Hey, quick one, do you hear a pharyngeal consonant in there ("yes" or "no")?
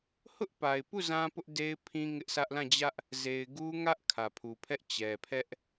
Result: no